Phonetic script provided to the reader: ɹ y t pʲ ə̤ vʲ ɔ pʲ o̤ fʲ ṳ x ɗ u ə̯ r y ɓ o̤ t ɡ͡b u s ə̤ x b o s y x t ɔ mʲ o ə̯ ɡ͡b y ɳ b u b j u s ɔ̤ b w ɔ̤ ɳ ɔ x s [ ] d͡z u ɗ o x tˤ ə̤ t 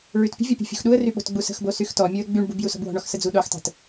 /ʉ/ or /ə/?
ə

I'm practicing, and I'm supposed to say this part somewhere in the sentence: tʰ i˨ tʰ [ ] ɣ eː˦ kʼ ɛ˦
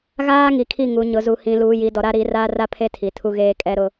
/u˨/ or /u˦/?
u˦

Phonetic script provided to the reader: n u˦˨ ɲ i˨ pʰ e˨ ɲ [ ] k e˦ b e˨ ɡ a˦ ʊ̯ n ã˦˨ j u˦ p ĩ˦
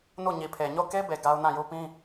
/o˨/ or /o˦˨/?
o˦˨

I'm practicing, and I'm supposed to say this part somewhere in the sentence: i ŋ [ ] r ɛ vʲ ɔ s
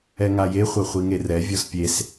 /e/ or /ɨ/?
e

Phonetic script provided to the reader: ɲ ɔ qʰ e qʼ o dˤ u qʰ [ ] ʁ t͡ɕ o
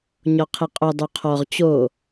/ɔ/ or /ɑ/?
ɔ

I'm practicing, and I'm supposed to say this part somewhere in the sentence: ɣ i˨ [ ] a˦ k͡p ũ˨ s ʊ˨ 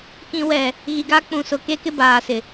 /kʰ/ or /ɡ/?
ɡ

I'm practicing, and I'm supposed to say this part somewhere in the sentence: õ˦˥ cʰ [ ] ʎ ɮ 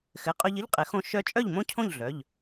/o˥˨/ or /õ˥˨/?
õ˥˨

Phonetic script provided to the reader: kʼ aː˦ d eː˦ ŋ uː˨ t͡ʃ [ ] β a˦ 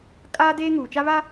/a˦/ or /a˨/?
a˦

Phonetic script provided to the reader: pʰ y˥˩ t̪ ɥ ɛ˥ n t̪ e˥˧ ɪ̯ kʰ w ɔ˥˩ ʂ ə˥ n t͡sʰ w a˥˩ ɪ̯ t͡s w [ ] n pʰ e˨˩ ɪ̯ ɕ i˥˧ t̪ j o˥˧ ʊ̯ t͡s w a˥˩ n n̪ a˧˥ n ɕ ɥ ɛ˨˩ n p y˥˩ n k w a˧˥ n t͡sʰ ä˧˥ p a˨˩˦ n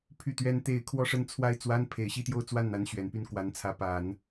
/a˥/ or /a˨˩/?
a˥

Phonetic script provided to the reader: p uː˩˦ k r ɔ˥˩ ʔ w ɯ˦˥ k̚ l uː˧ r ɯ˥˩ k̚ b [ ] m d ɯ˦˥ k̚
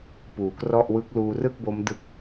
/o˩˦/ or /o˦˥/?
o˦˥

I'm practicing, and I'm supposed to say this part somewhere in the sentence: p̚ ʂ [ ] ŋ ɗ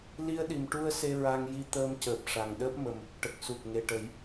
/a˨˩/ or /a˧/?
a˨˩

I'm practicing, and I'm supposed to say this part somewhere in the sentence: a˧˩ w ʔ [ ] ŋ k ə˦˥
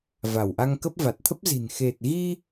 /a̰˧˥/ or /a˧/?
a˧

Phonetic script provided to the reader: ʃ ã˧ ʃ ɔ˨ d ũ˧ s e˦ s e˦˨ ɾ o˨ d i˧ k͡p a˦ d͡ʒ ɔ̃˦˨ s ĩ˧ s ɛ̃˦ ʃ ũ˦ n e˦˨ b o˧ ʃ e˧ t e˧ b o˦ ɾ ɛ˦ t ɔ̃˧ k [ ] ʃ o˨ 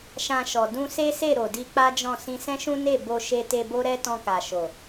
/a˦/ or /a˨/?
a˨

